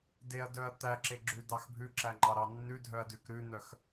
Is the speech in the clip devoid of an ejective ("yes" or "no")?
yes